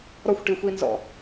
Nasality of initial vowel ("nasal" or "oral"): oral